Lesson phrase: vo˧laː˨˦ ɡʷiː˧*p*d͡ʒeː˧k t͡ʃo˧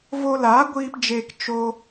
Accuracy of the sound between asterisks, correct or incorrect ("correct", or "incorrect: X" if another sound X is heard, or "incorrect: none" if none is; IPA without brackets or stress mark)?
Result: correct